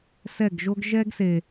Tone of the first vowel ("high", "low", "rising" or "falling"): falling